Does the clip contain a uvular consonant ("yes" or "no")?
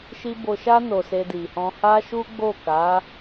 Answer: no